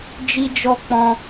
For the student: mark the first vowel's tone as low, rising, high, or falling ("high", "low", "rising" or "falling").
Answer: high